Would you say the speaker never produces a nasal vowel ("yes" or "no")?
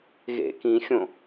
no